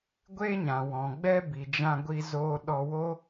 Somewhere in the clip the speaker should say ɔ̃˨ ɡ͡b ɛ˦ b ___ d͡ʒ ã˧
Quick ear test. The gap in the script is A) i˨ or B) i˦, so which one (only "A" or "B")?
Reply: A